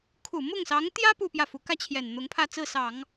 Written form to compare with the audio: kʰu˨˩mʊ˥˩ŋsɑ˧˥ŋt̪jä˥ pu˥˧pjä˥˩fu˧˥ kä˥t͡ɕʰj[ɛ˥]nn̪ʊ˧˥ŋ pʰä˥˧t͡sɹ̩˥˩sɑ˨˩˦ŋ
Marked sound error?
yes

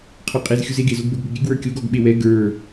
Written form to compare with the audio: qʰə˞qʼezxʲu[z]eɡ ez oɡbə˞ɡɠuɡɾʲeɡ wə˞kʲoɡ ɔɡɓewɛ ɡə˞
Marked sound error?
no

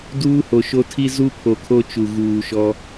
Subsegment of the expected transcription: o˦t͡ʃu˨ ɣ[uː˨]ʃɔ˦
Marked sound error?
no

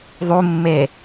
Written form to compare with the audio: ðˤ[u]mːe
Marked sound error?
no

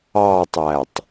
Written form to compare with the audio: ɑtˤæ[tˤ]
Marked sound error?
no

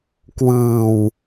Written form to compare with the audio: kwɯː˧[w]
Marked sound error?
no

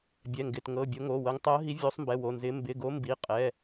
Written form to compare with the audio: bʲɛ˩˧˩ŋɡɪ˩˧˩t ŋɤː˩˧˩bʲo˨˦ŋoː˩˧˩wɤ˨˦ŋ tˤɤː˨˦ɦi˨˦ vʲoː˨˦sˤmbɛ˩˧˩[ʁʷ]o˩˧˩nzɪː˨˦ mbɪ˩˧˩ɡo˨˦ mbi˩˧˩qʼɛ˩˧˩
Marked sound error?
yes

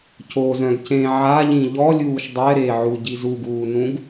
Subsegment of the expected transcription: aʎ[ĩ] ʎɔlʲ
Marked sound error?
no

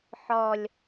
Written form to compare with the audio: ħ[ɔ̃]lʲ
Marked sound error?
yes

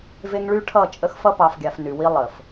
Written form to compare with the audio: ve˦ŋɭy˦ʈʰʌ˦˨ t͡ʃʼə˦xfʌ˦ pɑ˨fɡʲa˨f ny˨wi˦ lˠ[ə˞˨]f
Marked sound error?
yes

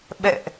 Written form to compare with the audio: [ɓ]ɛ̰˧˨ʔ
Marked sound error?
no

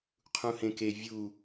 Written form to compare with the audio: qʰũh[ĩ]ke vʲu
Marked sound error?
yes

